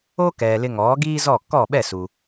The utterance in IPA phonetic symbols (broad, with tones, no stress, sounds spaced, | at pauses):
o˥ k ɛː˩ l ɪ˧ ŋ ɔː˩˥ ɡ iː˥ z ɔ˥˩ k ɔ˥˩ ɓ ɛ˥˩ s u˩